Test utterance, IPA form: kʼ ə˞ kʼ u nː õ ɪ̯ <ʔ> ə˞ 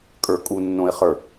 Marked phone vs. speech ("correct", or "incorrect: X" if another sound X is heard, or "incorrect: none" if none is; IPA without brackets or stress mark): incorrect: χ